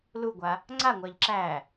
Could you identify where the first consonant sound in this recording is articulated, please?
alveolar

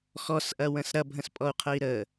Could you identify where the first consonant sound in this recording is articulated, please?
velar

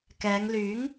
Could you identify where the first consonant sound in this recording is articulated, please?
velar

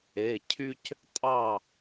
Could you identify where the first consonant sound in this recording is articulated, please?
palatal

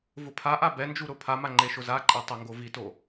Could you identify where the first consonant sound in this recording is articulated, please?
labial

